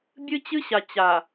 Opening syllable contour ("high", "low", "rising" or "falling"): high